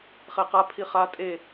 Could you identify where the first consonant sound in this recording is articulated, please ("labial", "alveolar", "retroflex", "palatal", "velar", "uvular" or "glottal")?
uvular